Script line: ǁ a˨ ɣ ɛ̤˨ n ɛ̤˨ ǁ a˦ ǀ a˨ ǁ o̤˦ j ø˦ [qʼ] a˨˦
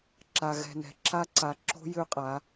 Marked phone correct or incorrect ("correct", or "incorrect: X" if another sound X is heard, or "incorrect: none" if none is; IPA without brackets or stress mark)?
correct